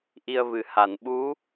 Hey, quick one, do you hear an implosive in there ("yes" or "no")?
yes